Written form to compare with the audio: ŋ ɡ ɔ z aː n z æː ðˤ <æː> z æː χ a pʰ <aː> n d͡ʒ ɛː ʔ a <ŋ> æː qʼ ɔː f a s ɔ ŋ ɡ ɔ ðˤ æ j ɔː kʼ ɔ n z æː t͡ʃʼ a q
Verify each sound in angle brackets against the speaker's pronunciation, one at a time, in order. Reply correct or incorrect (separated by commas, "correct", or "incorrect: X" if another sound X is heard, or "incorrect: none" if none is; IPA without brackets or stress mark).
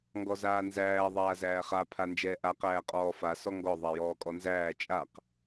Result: incorrect: aː, incorrect: a, incorrect: q